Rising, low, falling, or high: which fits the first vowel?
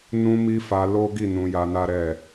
high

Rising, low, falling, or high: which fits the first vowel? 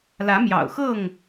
rising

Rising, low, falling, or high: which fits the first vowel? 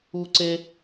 high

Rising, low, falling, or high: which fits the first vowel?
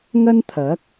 high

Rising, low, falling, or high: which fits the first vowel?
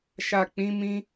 low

